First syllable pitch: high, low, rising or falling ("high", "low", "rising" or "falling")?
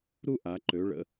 high